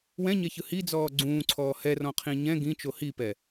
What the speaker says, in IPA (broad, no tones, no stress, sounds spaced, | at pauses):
w ɛ̃ ɲ ɛ ç ɯ h i d͡z ɔː ɡ͡ǀ ũː ǀʰ ɔː h ɛ r ɔ̃ qʰ ĩ ɲ ɛ̃ ɡ ĩ t͡ʃ o h i p ɛ